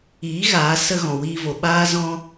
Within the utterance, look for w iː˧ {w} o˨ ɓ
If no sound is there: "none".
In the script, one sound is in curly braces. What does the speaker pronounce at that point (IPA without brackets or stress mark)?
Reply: v